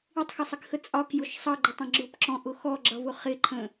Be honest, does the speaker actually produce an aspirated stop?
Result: yes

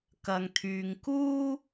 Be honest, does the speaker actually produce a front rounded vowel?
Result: yes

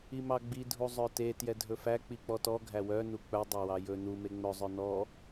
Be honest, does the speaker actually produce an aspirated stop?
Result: no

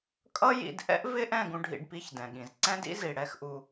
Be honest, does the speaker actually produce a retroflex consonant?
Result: yes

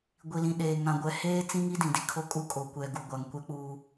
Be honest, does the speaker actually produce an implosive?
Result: yes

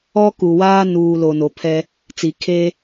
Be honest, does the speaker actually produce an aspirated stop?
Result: yes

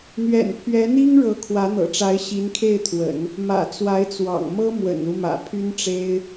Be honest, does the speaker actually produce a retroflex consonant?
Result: yes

